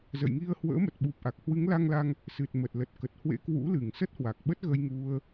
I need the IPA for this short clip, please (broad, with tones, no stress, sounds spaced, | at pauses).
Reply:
z ə̰˧˨ j ŋ i˧ ə̯ h w ə̰ː˧˥ m ə˨˩ t̚ ɓ u˨˩ p̚ ʔ a˨˩ k̚ h w ɨ˨˦ ŋ l a˧ ŋ l a˧ ŋ | s ɨ˨˩ t̚ m ə˨˩ t̚ l ə˨˩ t̚ k ə˨˩ t̚ h w ḛ˧˥ k w ṵ˧˥ l ɨ˧˩ ŋ s ə˦˥ t̚ h w a˨˩ k̚ ɓ ə˦˥ t̚ ɣ ə˧ j ŋ u˧ ə̯